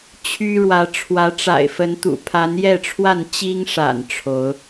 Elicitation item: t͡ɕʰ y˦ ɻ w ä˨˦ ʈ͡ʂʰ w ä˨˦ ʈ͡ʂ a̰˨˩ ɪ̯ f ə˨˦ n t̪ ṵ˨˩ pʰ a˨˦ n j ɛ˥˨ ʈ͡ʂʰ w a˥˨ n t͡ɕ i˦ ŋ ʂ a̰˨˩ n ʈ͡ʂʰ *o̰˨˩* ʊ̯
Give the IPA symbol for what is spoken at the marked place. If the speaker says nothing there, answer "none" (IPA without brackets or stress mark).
o˨˦